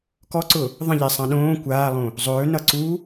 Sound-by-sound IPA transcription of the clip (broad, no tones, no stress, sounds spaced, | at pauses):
k ɔ ǀ ʊ | ðˤ ə̃ ʎ e sˤ ã ɗ õː kʷ aː lˠ õ | zˤ ɵː n ʌ ǀ u